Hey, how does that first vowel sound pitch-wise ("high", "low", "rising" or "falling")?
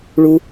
low